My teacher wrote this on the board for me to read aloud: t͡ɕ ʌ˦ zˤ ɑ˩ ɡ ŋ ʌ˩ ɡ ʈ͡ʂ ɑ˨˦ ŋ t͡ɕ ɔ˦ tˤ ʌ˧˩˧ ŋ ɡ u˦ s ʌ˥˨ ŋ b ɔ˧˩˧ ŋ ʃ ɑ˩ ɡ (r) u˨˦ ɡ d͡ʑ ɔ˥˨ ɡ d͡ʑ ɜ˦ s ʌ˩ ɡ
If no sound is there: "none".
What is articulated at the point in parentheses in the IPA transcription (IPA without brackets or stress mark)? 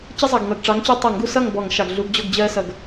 ɮ